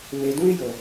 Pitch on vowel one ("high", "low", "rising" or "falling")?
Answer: low